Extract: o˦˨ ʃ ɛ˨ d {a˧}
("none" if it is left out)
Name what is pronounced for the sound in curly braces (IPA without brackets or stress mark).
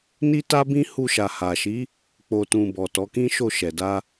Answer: a˧